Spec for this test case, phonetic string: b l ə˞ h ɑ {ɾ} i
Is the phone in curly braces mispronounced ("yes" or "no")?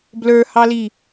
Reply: yes